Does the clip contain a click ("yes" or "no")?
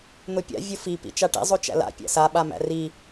no